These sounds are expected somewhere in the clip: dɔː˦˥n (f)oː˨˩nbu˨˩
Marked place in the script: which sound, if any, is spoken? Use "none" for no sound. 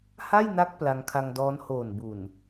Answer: h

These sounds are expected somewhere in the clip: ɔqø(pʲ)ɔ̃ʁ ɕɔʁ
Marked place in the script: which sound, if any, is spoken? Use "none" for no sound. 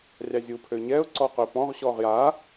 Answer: p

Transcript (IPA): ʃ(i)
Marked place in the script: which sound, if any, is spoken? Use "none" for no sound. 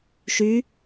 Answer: y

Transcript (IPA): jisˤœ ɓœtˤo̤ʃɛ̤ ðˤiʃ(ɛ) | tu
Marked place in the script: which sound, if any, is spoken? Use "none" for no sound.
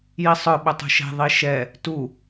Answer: ɛ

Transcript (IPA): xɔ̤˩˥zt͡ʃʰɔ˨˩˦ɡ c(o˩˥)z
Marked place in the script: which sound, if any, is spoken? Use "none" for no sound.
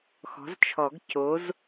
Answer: o˩˥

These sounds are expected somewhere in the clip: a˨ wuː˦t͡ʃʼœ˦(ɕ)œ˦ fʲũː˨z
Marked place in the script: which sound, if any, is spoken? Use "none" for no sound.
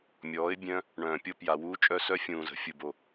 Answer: s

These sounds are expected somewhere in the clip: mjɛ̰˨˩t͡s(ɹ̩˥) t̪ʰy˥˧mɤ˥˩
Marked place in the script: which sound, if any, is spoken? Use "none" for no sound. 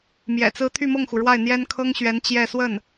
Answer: ɹ̩˥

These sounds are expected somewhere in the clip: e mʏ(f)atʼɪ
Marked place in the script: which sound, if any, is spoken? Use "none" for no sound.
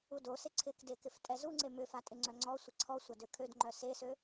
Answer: f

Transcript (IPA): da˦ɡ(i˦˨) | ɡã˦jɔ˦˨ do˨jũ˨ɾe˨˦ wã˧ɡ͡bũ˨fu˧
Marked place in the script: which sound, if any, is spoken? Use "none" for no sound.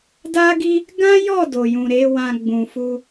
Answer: i˦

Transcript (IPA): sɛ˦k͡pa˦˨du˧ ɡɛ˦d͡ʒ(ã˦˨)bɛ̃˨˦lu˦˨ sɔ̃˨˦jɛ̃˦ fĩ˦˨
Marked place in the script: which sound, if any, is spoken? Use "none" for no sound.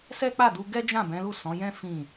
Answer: ã˦˨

